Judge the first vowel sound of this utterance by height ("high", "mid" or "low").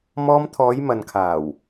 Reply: mid